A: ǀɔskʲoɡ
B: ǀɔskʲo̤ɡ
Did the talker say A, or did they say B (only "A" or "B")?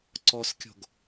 B